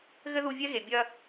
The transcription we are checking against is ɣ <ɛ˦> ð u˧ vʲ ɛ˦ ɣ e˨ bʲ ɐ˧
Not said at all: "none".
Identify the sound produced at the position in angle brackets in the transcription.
ɘ˦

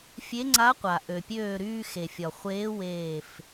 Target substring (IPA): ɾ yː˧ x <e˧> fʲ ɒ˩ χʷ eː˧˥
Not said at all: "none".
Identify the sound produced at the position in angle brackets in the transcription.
e˩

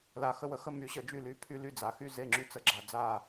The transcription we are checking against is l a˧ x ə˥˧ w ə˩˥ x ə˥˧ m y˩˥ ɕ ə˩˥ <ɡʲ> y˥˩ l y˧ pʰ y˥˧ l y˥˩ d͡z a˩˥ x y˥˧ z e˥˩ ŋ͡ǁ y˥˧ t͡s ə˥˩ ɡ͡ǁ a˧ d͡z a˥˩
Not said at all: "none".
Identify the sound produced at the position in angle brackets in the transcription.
d͡ʒ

